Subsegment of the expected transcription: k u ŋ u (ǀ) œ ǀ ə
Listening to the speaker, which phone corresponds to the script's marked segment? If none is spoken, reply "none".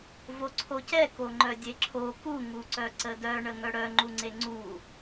ǀ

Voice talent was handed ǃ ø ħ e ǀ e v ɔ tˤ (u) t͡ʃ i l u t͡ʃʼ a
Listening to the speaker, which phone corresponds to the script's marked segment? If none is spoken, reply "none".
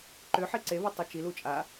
ø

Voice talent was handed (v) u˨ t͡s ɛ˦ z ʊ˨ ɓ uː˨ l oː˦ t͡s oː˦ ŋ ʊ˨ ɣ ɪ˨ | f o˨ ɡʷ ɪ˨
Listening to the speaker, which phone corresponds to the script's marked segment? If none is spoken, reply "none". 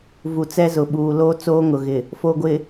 v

